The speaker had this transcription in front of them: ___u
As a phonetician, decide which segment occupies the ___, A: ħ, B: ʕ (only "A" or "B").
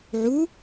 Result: B